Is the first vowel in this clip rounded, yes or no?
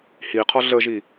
no